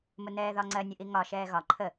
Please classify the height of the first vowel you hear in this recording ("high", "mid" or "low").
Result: high